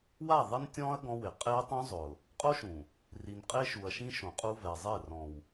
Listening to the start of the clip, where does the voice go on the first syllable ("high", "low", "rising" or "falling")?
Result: falling